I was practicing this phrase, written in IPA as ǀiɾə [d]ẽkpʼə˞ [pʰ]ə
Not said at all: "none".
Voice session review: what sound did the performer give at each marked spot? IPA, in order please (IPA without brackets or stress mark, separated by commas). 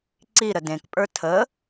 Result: d, tʰ